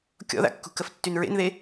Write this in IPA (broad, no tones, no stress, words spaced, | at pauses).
kʲɔ̰ða̰kːṳ kəftːynɹḛnðe